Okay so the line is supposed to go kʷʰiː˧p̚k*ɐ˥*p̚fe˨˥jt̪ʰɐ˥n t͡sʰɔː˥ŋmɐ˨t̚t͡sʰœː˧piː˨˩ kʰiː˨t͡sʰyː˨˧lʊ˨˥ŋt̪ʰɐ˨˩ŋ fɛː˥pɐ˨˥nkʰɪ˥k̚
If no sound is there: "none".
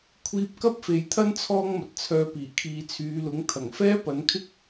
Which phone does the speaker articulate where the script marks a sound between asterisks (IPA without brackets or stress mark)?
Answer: ɐ˥